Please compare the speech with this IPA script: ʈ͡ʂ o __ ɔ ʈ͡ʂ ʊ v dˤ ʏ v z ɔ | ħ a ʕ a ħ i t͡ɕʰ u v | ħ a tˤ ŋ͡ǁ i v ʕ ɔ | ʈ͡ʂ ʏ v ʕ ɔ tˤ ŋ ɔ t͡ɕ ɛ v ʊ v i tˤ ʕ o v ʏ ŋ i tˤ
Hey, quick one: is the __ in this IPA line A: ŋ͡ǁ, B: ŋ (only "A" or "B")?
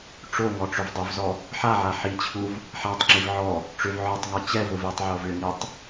B